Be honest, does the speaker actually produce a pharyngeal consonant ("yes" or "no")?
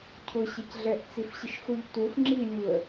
no